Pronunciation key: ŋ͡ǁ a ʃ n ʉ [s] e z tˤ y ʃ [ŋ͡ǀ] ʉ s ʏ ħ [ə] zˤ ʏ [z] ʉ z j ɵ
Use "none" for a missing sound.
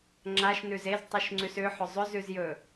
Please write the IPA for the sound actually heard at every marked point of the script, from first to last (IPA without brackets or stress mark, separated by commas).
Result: z, ŋ͡ǀ, ʏ, z